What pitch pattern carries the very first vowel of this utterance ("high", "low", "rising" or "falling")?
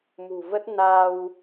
low